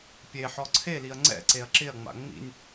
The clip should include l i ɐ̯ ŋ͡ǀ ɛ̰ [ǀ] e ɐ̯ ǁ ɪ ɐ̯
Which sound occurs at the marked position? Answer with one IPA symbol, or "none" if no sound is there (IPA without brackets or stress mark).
ǀ